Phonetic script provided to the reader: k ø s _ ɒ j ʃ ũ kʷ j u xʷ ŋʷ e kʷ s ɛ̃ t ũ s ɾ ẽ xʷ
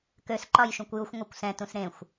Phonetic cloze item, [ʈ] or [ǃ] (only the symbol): ǃ